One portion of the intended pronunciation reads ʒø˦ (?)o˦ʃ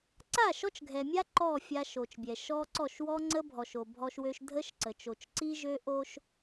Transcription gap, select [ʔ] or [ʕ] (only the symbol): ʔ